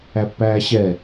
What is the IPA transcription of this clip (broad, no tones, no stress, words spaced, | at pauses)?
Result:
æpːæːɕɛ